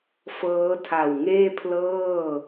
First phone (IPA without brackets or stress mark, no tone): f